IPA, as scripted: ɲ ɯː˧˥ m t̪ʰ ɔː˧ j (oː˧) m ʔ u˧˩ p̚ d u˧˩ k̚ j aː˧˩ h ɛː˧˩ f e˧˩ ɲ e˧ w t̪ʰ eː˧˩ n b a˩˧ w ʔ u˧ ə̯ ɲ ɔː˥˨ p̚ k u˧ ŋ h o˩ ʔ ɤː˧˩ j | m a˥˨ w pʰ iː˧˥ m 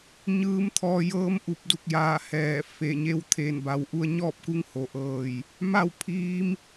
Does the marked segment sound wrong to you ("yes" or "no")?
yes